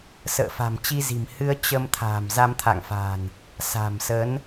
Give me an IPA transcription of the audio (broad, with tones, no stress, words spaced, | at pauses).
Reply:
sə̰ː˧˨fa̤˨˩m t͡ɕi˧zi̤˨˩m hɨ˧ə̯ t͡ɕə˧m t̪ʰa̤ː˨˩mza˧mt̪ʰa̰˧˨ŋfa̤ː˨˩n | sa̤˨˩msə˨˦n